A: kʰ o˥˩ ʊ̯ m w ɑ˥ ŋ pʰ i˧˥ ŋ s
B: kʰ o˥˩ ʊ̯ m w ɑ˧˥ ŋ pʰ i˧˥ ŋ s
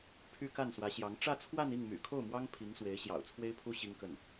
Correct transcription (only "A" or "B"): A